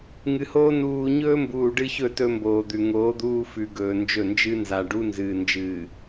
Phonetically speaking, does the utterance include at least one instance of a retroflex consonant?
yes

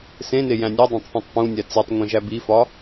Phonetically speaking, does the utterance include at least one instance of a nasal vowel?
yes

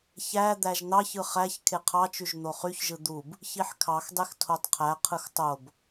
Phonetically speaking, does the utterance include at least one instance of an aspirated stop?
yes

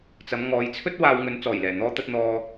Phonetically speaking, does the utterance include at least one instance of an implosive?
no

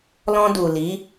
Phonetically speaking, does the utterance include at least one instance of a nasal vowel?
yes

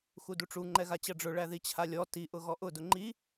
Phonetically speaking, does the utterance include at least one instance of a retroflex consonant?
yes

